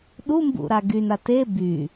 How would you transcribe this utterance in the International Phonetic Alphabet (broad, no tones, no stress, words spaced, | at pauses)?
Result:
ɗumbṵɾa ɡyna te by